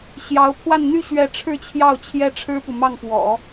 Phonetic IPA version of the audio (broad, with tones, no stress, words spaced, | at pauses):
ɕjɑ˧˥ʊ̯pʰwa˥˧n n̪y˥˧ ɕɥɛ˥˧ ʈ͡ʂʰɻ̩˥˧t͡ɕʰjɑ˥˩ʊ̯ t͡ɕʰjɛ˥ʈ͡ʂʰɻ̩˥pu˨ mɑ˥˩ŋpwɔ̰˨˩˦